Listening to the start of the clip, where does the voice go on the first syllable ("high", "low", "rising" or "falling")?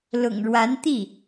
low